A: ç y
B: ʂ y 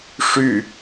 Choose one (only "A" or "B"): B